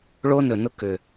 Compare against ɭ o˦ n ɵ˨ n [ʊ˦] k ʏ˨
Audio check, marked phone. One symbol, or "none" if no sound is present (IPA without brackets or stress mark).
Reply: ʊ˦